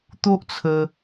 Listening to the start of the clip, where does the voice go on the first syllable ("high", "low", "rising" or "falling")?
high